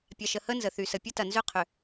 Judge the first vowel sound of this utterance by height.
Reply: low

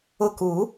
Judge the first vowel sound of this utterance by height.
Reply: high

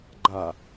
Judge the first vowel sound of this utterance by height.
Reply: low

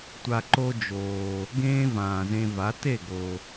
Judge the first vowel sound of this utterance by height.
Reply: low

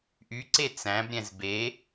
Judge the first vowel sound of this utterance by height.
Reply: high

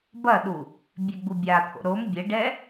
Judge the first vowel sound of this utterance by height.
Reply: low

